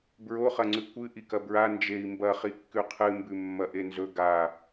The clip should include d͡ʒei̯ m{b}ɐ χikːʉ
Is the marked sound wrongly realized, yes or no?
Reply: no